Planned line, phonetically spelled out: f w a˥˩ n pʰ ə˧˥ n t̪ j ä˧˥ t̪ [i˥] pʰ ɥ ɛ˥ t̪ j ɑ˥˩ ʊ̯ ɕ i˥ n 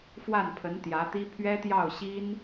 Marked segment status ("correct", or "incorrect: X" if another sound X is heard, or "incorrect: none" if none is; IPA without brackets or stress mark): correct